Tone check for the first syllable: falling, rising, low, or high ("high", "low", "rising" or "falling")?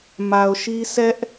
low